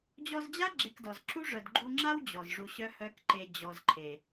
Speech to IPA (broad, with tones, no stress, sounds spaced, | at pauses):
d͡ʑ ɔ˧ z d͡ʑ a˦ ɡ͡ǁ e˧ k d ɔ˨ z ǁ u˦ ʐ œ˨ d ɡ͡ǃ u˧ ŋ͡ǁ a˦ w d͡ʑ ɔ˨ z ʐ u˧ ɕ œ˦ h œ˦ k ǃ e˧ d͡ʑ ɔ˨ z ǃʰ e˨